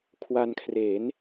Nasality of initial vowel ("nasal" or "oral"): oral